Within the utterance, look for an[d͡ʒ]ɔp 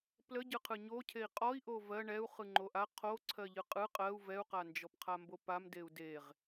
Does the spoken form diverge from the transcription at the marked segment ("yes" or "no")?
no